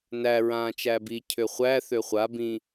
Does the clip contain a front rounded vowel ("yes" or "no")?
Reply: yes